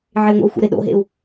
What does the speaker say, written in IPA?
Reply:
ʕ e u̯ ŋʷ ɛ̰ u̯ xʷ ə̰ ɾ e ɗ o̰ ɦ ḛ u̯

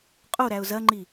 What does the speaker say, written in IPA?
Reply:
qʼ o ɾ æ ʊ̯ z ɐ ŋ͡ǃ i

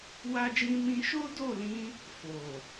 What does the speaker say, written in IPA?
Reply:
w a˦ d͡ʒ ĩ˦ m ĩ˦ ʃ o˦ d o˦˨ l ĩ˧ | f o˨

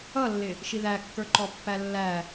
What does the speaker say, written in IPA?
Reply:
ʌ lː ɪ | ʃ i ð æ kː ə˞ ǃ ɔ pː æ lː æ

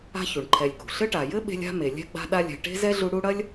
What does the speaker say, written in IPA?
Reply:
a̤˦ ç u˩ ɳ ǃʰ ɛ˨ lʲ k ṳ˩ ɬ ɘ˦ ʈ a˩ j ɘ˥ ɓ e̤˦ lʲ a̤˦ m e˩ lʲ ɛ̤˥ ɡ͡b a̤˦ ɗ a˦ lʲ ɛ̤˨ ʈ e̤˥ z ɛ˥ ɮ u˦ ɽ u˦ ɽ ɐ˥ lʲ

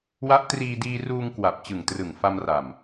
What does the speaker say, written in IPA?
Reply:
w a˦˥ ʔ t r iː˧ d iː˧ r uː˧ ŋ k w a˨˩ p̚ t͡ɕ ɯ˨˩ ŋ t r ɯ˨˩ ŋ f a˧ m r a˨˩ m

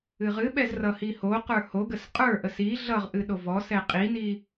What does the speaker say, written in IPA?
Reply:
ɨ ʁ ɨ ɓ ɛ z r ʌ h i h o q ə˞ h o ɡ ə s qʼ ə˞ ʔ ə s i ɮ ʌ ʁ ʔ ɨ ɗ o v ɔ s ɛ qʼ i n i

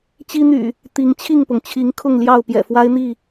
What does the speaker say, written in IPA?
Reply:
t͡ɕ i˦ n̪ y̰˨˩ | t̪ i˨˦ ŋ t͡ɕʰ i˥˨ ŋ p ʊ˩ ŋ t͡ɕʰ i˨˦ ŋ kʰ ʊ˥˨ ŋ l j ɑ˥˨ ʊ̯ p j ɛ̰˨˩ f w a˦ ɪ̯ n̪ i˥˨

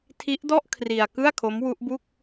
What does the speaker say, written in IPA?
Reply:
tʰ i˦˥ ʔ d ɔ˥˩ ʔ kʰ r i˧ a̯ k ɯ˥˩ a̯ kʰ o˦˥ m w u˦˥ ʔ b u˥˩ k̚

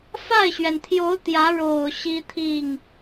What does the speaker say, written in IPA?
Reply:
f a˥˩ ɪ̯ ɕ ɥ ɛ˩ n t̪ʰ j o˧˥ ʊ̯ t̪ j ä˧˥ ɻ o˨˩ ʊ̯ ɕ i˥ t̪ʰ i˥˩ ŋ

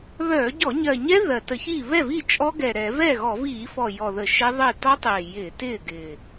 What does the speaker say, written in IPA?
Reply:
β œː˧˩˧ ɟ ɔ˧˩˧ ɲ ɜ˨˩ ɲ ɛ˦˥ ð ɜ˨˩ t ə˧˩˧ ç iː˥˩ β ɛ˥˩ v i˥˩ t͡ʃʼ ɔ˦˥ ɡ ɛ˨˩ ɾ ɛ˧˩˧ v ɛː˥˩ ɣ ɔ˧˩˧ v iː˧˩˧ f ɔ˨˩ j ɔ˨˩ ð ə˧˩˧ ʃ ɛ˦˥ ðˤ ɪː˥˩ t ɔ˦˥ tˤ ɪː˨˩ j ɪː˧˩˧ t ɪː˥˩ ɡ ɪ˨˩

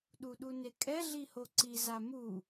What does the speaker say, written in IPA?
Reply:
ɗ u ɗ u n e kʼ ɛ ɮ i h o ǀ i z a m u

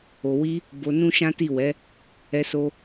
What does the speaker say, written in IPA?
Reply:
o˨ w i˧ | b o˧ n ũ˦ ʃ ã˦ t i˦˨ w ɛ˨˦ | ɛ˧ s o˧

